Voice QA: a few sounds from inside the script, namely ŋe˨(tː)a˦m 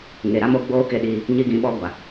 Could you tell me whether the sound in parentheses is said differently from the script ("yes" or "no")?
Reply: yes